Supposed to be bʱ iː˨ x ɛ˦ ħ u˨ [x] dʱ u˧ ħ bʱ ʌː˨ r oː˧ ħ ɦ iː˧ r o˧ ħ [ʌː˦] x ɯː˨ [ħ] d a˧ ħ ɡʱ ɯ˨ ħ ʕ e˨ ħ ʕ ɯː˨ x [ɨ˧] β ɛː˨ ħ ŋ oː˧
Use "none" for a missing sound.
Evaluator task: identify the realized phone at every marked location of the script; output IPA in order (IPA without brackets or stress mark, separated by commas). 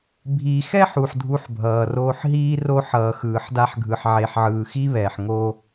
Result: ħ, ʌː˨, ħ, i˧